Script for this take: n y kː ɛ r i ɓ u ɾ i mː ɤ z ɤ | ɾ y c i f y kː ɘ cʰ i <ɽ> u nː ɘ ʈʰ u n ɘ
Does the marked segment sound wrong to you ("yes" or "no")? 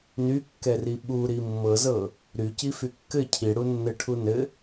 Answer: no